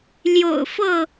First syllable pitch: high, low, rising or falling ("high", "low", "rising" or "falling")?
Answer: low